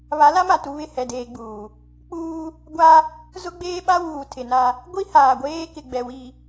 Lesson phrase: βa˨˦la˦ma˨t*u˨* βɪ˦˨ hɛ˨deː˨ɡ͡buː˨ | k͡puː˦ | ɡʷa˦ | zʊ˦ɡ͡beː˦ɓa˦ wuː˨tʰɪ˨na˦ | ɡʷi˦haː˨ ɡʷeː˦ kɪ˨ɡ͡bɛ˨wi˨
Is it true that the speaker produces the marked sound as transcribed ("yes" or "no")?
yes